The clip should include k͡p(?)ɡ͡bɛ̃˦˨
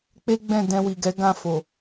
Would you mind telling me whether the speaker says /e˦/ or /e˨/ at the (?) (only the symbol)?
e˦